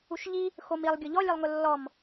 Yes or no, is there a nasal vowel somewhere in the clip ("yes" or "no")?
no